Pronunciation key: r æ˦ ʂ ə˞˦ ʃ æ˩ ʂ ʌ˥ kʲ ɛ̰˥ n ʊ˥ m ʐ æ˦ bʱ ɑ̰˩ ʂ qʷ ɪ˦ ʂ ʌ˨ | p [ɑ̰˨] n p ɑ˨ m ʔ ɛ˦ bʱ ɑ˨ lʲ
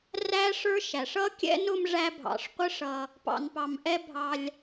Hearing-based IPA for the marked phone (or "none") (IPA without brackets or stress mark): ɑ̰˨